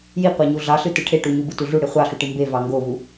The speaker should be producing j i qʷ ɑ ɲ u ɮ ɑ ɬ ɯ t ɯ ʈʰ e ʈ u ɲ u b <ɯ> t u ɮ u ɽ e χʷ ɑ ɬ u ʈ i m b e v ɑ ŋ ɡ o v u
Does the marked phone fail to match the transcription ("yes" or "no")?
no